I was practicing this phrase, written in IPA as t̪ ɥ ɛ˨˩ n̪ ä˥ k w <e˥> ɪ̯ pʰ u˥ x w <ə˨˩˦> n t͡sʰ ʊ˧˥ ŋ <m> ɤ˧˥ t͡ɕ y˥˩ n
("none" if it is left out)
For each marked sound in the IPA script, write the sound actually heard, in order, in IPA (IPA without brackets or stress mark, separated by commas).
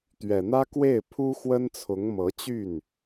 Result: e˥˩, ə˥, m